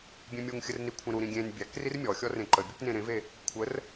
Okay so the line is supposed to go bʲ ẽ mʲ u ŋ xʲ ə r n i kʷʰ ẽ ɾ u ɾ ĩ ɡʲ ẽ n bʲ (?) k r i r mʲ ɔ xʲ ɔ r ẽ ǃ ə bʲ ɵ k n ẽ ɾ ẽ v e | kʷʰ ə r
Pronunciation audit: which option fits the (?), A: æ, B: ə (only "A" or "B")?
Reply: A